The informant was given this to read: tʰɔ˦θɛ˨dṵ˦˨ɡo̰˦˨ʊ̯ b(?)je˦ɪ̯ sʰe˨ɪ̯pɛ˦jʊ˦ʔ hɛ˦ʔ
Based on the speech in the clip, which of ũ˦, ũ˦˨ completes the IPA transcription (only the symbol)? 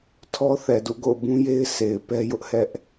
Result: ũ˦